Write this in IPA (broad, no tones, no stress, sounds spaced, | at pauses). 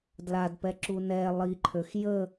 d l a d p ɛ ǁ u n ɛ lˠ i ǃʰ ø x j ə